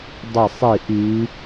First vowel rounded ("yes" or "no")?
no